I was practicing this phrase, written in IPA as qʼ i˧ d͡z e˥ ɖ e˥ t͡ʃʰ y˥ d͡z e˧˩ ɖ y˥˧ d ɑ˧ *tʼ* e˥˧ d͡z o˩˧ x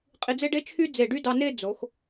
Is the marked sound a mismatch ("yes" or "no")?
yes